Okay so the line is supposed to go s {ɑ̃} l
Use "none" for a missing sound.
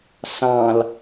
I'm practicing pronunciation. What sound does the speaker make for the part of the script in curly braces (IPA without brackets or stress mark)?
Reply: ɑ̃